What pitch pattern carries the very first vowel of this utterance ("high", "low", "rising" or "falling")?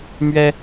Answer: high